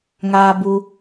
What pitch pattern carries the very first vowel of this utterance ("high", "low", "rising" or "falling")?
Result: high